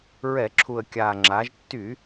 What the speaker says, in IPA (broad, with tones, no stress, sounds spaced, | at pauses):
ɹ ɛ˧˩˧ ǁʰ u˨˩ ə̯ kʲ a˨˩ ŋ͡ǁ a˩˧ ʒ tː y˧˩˧